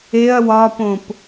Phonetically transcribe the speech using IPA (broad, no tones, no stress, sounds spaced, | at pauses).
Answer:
e ɐ̯ w ɒ p õ p